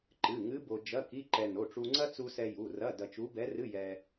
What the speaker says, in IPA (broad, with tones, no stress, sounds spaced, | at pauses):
ǃ ɨ˩˧˩ ŋ ɨ˧˥ b o˧ d͡ʒ ɐ˧˥˧ k i˧˥˧ ǃ ɛ˧ n o˩˧˩ ʈ͡ʂ u˧ ŋ͡ǀ ɐ˥ t͡s u˧ s ɛ˧ j u˩˧˩ r ɐ˧˥˧ d ɐ˧ t͡ʃ u˧˥ b ɛ˧˥ r ɨ˧˥˧ j ɛ˧